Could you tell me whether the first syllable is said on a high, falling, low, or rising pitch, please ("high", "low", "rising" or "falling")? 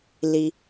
low